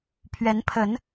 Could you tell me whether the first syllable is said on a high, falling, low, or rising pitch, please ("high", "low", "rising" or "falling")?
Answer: rising